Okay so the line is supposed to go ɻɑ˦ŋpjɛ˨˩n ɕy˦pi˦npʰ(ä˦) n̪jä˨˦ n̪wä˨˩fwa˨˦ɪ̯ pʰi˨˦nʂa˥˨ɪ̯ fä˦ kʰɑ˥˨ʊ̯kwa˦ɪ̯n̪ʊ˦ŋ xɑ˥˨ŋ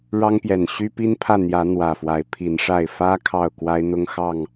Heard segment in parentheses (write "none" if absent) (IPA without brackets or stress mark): ä˥˨